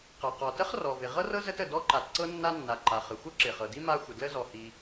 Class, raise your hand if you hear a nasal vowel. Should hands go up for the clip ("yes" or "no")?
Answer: no